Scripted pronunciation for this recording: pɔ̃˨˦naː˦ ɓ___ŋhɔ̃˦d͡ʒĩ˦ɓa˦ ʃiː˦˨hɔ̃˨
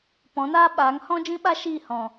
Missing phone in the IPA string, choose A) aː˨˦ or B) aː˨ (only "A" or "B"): A